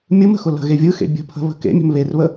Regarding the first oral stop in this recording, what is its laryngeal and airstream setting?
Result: plain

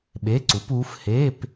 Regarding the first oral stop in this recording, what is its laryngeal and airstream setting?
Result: implosive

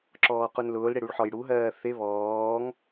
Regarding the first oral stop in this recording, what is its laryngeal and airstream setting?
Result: click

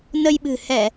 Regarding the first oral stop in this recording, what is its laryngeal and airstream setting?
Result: implosive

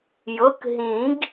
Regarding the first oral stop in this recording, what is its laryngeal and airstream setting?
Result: plain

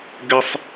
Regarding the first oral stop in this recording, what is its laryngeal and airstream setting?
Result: plain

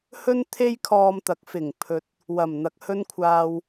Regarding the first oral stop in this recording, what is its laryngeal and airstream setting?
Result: aspirated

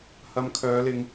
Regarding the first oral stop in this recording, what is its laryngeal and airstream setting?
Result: aspirated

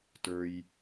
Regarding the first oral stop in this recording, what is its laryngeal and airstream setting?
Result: plain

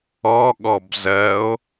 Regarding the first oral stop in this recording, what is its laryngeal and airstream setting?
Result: implosive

